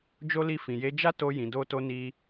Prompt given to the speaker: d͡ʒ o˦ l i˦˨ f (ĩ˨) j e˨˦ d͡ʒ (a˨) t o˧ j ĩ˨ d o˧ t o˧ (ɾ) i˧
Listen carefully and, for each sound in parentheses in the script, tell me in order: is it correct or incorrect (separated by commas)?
correct, incorrect, incorrect